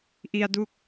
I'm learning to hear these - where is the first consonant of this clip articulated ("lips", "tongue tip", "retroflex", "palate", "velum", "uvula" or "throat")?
throat